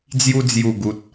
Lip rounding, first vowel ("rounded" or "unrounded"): rounded